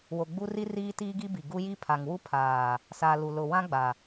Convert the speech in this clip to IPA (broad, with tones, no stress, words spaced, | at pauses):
wo˨ɡ͡bu˦ri˦ riː˦tiː˦ɡi˦bi˨ ɡu˦ji˦pʰa˨ŋ wu˦pʰaː˨ | saː˨ lu˨ lʊ˨wã˦ ɡ͡ba˨